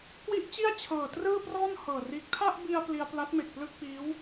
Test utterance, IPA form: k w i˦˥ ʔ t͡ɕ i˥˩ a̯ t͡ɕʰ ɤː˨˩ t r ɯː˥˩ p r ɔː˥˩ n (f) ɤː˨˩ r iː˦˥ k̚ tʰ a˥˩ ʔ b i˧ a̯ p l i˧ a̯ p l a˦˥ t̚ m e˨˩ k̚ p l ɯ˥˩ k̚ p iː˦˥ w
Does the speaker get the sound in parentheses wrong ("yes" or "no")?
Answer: yes